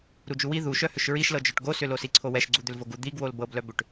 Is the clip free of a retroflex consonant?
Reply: no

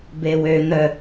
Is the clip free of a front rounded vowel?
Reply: no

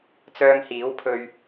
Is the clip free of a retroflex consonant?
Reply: yes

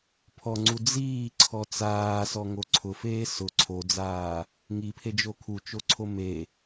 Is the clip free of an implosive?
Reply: yes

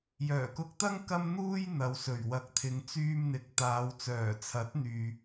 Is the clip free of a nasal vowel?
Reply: yes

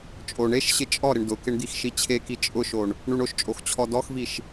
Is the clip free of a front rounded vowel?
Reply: yes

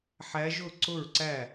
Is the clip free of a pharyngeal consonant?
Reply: no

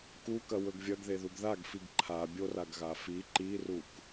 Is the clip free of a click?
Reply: no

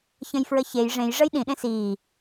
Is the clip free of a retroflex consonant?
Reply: no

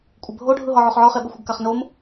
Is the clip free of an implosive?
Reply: no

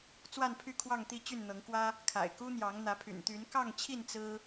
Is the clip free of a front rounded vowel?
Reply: no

